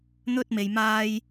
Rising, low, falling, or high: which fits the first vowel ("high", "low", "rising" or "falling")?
high